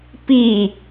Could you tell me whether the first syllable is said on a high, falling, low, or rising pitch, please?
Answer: falling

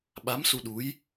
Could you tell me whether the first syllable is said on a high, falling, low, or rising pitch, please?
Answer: rising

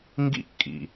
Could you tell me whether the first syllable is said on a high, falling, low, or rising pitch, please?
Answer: falling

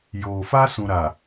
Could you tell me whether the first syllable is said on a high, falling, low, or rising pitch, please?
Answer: low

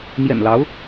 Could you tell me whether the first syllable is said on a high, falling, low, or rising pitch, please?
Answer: low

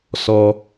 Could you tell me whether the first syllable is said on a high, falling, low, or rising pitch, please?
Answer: low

